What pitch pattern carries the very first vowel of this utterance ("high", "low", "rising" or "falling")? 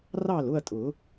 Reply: falling